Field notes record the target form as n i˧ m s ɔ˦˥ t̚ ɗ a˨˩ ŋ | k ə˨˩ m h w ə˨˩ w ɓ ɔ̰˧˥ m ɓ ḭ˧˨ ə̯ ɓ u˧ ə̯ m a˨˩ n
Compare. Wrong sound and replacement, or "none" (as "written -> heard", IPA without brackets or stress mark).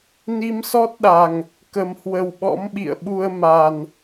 none